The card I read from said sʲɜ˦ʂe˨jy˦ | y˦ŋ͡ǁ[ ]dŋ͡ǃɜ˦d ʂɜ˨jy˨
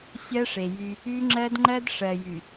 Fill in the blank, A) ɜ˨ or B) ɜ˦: B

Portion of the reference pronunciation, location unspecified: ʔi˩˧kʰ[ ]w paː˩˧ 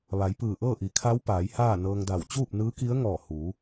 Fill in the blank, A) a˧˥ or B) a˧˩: A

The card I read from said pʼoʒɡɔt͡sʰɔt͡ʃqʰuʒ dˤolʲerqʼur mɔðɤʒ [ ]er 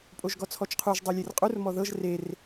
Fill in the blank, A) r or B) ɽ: A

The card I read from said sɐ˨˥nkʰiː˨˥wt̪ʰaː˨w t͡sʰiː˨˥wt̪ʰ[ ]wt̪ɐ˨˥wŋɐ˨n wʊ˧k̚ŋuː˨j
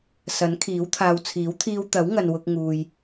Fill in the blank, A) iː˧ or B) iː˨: A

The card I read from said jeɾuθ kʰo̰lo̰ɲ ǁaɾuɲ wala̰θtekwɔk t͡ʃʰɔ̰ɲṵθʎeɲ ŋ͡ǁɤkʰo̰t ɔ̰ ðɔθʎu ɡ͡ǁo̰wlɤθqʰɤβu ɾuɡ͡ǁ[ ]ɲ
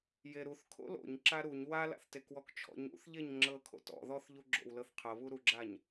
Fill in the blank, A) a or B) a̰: A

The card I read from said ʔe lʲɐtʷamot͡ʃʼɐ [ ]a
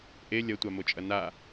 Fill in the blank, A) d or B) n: B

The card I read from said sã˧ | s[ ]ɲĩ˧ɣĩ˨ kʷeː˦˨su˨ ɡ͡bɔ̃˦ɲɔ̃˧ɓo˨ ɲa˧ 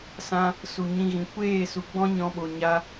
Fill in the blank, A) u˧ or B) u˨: B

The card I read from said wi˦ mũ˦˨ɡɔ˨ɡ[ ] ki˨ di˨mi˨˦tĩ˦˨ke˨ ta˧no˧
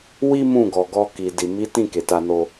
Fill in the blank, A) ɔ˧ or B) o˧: A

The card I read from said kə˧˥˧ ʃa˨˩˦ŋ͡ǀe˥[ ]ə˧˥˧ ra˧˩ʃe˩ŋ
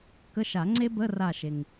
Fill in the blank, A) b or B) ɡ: A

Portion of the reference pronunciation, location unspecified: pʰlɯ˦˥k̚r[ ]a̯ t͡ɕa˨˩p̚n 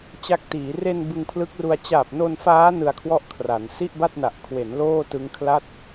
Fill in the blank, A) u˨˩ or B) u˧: B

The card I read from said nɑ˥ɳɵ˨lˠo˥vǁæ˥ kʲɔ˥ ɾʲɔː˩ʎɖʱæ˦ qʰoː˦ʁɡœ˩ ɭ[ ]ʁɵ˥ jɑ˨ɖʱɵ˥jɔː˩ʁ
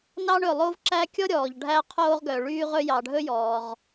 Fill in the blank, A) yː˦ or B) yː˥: B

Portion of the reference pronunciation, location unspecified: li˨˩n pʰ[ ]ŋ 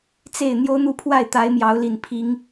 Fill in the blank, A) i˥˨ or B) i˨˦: B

